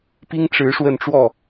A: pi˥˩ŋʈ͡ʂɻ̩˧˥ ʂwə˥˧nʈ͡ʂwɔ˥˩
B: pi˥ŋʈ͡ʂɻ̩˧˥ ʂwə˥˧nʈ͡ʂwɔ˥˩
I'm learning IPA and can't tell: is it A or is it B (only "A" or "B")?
B